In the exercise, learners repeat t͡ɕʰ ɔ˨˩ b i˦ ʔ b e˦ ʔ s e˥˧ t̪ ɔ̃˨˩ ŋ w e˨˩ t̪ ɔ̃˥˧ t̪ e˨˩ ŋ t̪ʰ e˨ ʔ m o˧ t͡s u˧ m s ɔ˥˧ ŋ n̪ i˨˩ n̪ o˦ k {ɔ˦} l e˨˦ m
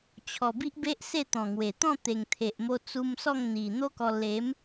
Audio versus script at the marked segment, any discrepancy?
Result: yes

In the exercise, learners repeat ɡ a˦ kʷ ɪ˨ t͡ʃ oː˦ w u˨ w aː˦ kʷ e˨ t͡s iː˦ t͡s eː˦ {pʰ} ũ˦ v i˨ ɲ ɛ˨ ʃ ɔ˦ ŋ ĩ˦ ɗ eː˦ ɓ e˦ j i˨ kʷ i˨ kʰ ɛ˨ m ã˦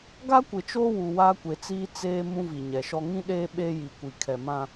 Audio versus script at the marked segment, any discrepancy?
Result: yes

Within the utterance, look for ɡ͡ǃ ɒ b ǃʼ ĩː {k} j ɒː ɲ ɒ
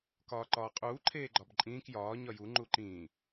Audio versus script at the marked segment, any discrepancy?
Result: no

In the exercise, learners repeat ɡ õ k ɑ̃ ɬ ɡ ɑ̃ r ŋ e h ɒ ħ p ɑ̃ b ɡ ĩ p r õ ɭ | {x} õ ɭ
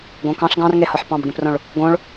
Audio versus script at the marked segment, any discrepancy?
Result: yes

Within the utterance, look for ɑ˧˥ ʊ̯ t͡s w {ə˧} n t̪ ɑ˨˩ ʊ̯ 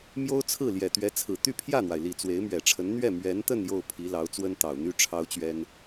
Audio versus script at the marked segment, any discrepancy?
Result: yes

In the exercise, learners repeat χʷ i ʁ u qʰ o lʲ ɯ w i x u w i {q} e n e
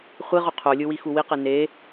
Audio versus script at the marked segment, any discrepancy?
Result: no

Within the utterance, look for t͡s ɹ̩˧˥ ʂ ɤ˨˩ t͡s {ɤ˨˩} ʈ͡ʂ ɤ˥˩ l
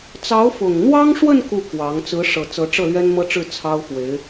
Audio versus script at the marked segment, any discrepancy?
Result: yes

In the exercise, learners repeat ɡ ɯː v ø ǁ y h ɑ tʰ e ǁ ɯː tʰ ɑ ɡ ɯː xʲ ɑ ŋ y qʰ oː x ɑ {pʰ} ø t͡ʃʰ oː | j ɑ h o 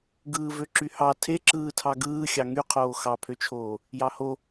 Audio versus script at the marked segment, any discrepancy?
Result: no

